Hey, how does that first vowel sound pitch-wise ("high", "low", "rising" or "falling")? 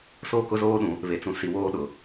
falling